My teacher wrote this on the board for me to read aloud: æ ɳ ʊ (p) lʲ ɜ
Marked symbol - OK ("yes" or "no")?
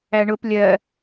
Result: yes